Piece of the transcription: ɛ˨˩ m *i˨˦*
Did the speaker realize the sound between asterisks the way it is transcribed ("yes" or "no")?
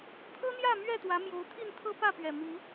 yes